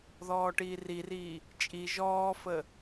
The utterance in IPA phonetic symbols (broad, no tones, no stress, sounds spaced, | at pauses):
ð ɔː ʈ iː r i r iː | t͡ʃʼ i ʒ ɔː f ə